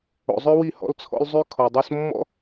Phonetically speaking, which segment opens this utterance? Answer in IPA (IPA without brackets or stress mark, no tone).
o̰